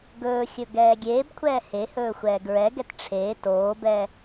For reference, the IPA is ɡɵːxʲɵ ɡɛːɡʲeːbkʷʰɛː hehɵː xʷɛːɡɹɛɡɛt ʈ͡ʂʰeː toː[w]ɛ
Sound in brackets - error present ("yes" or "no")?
yes